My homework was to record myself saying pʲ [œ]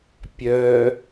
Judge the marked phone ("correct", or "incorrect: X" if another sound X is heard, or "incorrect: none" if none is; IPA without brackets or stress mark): correct